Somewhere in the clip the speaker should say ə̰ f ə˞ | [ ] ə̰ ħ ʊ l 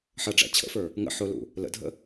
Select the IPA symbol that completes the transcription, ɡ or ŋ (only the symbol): ŋ